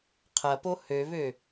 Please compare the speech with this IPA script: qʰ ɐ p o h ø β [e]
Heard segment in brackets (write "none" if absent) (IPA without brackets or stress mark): ø